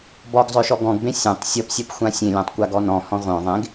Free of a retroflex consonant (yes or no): yes